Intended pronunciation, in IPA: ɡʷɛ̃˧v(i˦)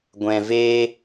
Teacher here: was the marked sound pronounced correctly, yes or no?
no